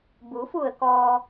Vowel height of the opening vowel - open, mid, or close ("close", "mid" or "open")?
close